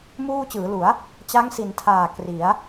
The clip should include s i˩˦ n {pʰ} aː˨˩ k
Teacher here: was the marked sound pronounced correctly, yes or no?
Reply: no